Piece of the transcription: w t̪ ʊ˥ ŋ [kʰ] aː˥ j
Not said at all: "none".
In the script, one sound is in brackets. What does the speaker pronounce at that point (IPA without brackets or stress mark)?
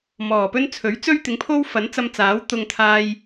t̪ʰ